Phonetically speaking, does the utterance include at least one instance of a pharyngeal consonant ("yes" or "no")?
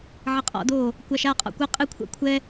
yes